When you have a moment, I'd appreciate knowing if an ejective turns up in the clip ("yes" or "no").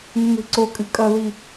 yes